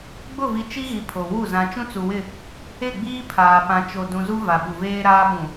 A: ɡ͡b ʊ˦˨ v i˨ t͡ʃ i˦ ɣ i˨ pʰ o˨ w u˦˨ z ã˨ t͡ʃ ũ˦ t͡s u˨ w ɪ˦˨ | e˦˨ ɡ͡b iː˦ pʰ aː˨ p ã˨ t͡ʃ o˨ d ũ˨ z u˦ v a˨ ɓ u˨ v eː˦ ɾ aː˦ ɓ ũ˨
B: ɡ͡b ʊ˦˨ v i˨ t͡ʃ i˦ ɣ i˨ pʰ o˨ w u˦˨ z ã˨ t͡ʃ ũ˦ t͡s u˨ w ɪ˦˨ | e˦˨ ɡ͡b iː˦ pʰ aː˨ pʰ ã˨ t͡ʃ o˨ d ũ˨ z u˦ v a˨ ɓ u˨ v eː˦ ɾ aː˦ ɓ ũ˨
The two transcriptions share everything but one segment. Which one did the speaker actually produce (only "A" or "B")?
A